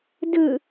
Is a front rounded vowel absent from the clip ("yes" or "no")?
yes